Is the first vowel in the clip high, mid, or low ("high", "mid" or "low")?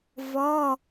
mid